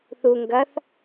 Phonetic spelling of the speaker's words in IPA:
θu ŋɡɐθ

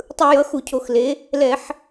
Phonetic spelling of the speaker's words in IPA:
tˤɯ˧˩˧jʌ˩˥ xu˧˩˧cʰo˧˩˧x le˩˥ | lɛ˧˩˧ħ

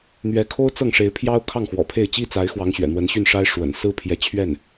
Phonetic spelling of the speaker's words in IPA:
n̪ɥɛ˧˥kʰo˥ʊ̯ t͡sɤ˥˩ŋʂe˧˥ɪ̯pʰjɑ˥ʊ̯ kʰɑ˥˩ŋxwɔ̰˨˩pʰe˥˩ɪ̯ t͡ɕi˥t͡sa˧˥ɪ̯xwɑ˧˥ŋ ɕɥɛ̰˨˩n̪wə˧˥nɕy˥˩nʂa˥ɪ̯ ʂwə̰˨˩n sɹ̩˥pʰjɛ˧˥t͡ɕʰɥɛ˥˩n

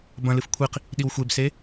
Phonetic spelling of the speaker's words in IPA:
bɐ̃lɨf kʷʰiq | ɗiwxʷebse

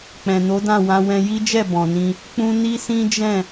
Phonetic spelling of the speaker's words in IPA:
k͡pɛ̃˨no˨˦dã˦˨wã˧ wɛ̃˧ji˦d͡ʒɛ˦˨ bɔ̃˨nĩ˧ | k͡pũ˦ ni˦sĩ˦d͡ʒɛ̃˦˨

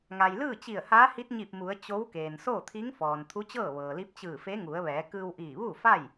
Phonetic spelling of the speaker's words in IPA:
ŋa˩jlɯː˥˨t͡ɕi˧˩ə̯haː˧˥ hi˧˥t̚ɲi˧˩p̚mu˩˧ə̯ t͡ɕo˧˥wkeː˩n soː˥˨t̪ʰi˧˥ŋ fɔː˩n t̪ʰu˧˥t͡ɕɤː˥˨ʋɤː˩li˧˥p̚ t͡ɕɯː˧˩fe˧˥ŋu˩˧ə̯ʋɛː˩˧ kɯː˧wʔiː˧˩ʋu˥˨fa˥˨j

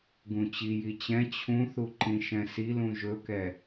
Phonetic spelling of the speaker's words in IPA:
ɡũt͡ɕiji t͡ɕɛ̃ t͡ɕʰũθu ǃĩʃɛ̃silũ ʒɵkɛ

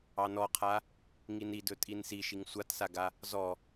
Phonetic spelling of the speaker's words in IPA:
ɑnɔqʰa | ŋinidɵ tʼinsiʃiŋ sʷatsaɡa | zɔ

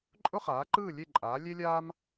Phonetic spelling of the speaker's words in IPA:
ǃʼʊ˥χaː˩˥ǃɯː˥˨ lʲe˥˨ǃʼaː˩˥lʲe˥lʲaː˥m

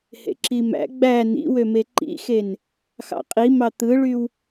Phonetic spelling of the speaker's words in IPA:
hḛǁimæ̰ ɡ͡bæ nḭwøme ǃḭxen | xɑ̰qʼimɑ t̪ɯɭyw

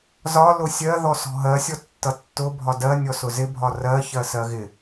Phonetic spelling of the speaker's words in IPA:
zɒ lʊsʲɜðɔ sɔ̤ɦɜsʲɔ tːʌtːʊ bʱɒdɜ nʲɔsʊzɪ bʱɒrɜçɜ sɜɣɪ

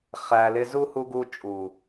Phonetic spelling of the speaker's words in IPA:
χæ˨lɪ˧ zu˦ hu˧ɡu˧ t͡ʃʼu˨

